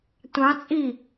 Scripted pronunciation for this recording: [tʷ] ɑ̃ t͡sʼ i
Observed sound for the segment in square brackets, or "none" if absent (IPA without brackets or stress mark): tʷ